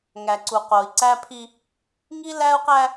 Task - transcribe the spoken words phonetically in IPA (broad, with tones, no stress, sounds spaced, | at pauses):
ŋ æ˨ ǀ u˨ q o˨ i̯ ǀ æ˦ pʰ i˦ | ŋ i˦ l æ˦ u̯ q æ˦